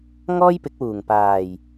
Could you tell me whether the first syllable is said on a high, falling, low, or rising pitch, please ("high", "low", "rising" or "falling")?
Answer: high